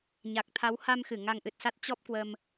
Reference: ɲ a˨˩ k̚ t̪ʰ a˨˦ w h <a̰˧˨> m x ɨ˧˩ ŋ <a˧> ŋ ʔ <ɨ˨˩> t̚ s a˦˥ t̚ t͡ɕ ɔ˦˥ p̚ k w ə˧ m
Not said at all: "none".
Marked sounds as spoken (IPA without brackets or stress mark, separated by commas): a˧, a˧, ɨ˨˩